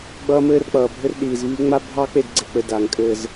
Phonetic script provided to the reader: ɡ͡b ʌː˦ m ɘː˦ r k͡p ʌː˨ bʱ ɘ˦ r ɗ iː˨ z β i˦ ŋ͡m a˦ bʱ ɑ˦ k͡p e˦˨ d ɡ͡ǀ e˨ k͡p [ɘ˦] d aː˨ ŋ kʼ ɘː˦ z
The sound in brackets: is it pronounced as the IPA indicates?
yes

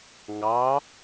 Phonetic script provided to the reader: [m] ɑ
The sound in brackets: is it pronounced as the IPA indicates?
no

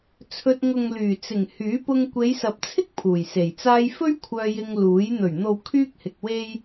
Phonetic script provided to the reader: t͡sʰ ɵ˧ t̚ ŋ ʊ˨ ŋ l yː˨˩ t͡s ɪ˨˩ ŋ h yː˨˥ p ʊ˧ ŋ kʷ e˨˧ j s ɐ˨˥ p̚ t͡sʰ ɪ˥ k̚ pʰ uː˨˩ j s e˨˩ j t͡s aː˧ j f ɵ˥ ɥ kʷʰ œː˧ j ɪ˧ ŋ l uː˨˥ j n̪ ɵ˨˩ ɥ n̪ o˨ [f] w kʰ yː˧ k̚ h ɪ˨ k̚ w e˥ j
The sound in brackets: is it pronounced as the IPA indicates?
no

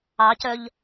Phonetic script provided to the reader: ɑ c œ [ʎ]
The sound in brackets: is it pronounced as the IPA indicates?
yes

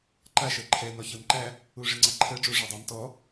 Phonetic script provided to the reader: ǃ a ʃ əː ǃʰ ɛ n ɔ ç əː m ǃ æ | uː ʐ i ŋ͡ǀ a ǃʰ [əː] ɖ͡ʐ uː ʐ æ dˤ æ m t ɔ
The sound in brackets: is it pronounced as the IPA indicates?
yes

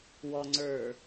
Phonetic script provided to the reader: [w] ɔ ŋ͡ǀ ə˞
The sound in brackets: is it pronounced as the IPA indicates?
yes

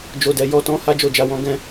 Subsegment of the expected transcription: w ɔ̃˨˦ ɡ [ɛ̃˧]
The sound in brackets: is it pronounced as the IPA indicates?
yes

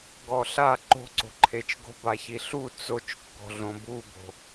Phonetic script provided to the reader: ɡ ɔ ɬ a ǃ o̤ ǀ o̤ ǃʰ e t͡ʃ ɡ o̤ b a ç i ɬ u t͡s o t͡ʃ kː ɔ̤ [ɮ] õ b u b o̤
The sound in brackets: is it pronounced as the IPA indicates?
yes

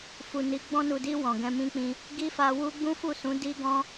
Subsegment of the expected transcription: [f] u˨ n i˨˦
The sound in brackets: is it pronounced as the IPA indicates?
yes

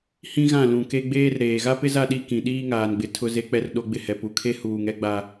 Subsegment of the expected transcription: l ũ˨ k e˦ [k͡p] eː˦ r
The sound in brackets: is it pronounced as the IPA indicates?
no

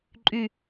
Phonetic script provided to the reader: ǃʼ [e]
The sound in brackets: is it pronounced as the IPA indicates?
no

